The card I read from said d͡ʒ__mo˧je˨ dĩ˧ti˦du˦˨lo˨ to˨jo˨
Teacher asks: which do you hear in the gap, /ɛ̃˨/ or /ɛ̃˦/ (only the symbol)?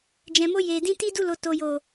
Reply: ɛ̃˨